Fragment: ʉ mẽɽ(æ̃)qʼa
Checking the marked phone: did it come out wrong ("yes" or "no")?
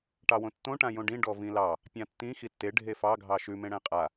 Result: no